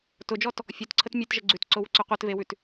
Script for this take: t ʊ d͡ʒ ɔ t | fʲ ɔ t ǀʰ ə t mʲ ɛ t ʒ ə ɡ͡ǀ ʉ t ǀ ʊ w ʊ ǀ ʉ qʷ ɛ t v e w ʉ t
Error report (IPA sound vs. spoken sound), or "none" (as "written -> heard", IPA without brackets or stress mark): none